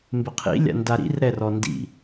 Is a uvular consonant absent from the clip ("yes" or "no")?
no